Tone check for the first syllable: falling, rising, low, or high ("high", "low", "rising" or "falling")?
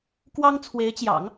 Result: high